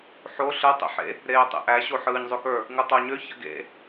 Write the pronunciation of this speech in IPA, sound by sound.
ħ o ɬ ɯ tˤ ḛ ħ ḛ | ɾ eː tˤ ḛ ʔ æ ɕ o ħ ɯː ɲ zˤ ø k ə˞ | ŋ ɯ tˤ o ɲ ø ç ə̰ ɡ ḛ

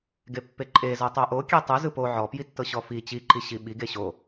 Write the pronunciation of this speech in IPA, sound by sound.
ɡ e pː e ǃʼ e z ɤ tˤ o ʔ o kʲ e tˤ ɯ z ɯ p o ʕ ɔ p j i tː ɤ ɕ ɔ f i t͡ɕ i ǃ i ɕ i ɓ i ɡ e ɕ o

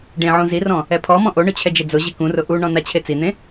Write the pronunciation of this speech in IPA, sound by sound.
ɖ ẽ ʕ ũ z i r ɔ̃ | ɛ pʰ ɔ m ɔ̃ ʔ o ɳ ʊ t͡ɕʰ ɛ d͡ʒ e d͡z ʊ ʑ i k ũ r ʊ ʔ u ɳ ɔ̃ n a t͡ɕʰ e t͡s i n̪ ẽ

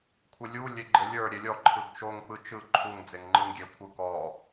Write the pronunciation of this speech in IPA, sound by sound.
kʷʰ ɘ lʲ u lʲ e ɡ͡ǃ ɘ lʲ ə˞ ɾʲ e lʲ ɔ ǃʰ ɯ ɡ t͡ʃ o ŋ k͡p ɯ t͡ʃ ɯ ǃʰ u ŋ d͡z e ŋ ŋ͡ǃ ɯ ŋ ɡʲ e kʷʰ ɯ k ɔ

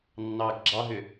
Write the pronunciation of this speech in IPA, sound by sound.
nː ɑː ɡ ɡ͡ǁ ɑ ɦ ʏ

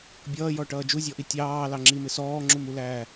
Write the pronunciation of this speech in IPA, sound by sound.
bʲ ʌː j ɔ ʈ ʌː d͡ʒ u zʲ ɔ ʔ i tʲ ɑː l ɑ ŋ͡ǁ i m ɪ s ɔː ŋ͡ǁ u m u l æː

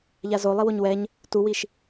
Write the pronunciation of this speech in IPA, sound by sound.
ʎ a z o lˠ i w o ɲ w ɛ ɲ | t u w i ʃ

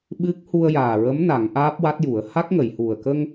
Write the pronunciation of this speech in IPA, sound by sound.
ɓ ɨ˦˥ k̚ h u˧ ə̯ j aː˨˩ ɹ ə˧˥ m n a˨˩˦ ŋ ʔ aː˦˥ p̚ w a˦˥ t̚ j u˨˩˦ ə̯ h a˦˥ k̚ ŋ ə˨˩˨ j h u˨˩ ə̯ k ə˧ ŋ

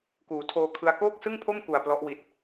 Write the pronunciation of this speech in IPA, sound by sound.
k uː˩˦ tʰ oː˧ kʰ ɯ˦˥ a̯ k oː˥˩ k̚ s ɯ˥˩ ŋ pʰ o˥˩ m k u˨˩ a̯ p l ɔ˦˥ ʔ w i˨˩ t̚

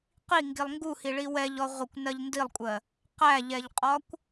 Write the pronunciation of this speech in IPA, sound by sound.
q i ŋ ɡ i lˠ ŋ ɡ u h i ɭ i w ɛ ʎ ɔ ʁʷ ə kʷ n ɜ ʎ n d i lˠ kʷʼ ɜ | q æ ʎ ɛ ʎ qʼ ɒ kʷ

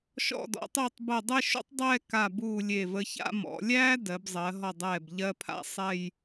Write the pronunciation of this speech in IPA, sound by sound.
ʃ ɔ̰˧˩ d ɔ̰˩˧ tˤ uː˧˩ tˤ b ɜ˧˩ dˤ ɛ˥˧ ʃ ṵ˥ tˤ dˤ ɛː˥˧ k a˧˩ b uː˧˩ lʲ e˧˩ v ə˧ ç a̰˥˧ m ɔ̰˩˧ lʲ æː˥ d ɜ˩˧ b zˤ ɜ˩˧ ɦ ɔ˧˩ dˤ ɛː˧˩ b ʎ ɜ˧ pʰ a̰˥˧ sˤ ɛ˥˧ j

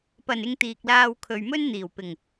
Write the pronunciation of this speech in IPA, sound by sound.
p ɐ˨˩ n ɪ˧ ŋ t̪ iː˨ k̚ l aː˧ w kʰ ɵ˨ ɥ m ɵ˥ n n̪ iː˨˩ w p ɪ˨˩ ŋ

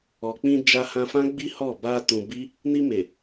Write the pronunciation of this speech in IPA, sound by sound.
ɔ˨ k͡p ĩ˧ d͡ʒ a˧ h ã˧ f ã˦ ɡ͡b i˦ h ɔ˦˨ b a˧ t ũ˧ b i˦ | n i˧ m e˨

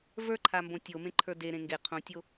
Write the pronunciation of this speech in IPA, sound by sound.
v ə˞ ǃʰ a m b õ tʲ o m ẽ ǃʰ ə˞ d e ɾ ẽ ŋ ɡ e qʰ õ tʲ o

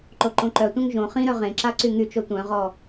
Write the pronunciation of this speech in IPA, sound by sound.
ǃ o ǃ õ ǃ œ tʷ œ̃ ŋ ʒ õ χ ĩ ɾ œ ʁ ẽ ǁ a ǀ y ŋ y t͡ʃ o tʷ œ̃ ʁ ɔ

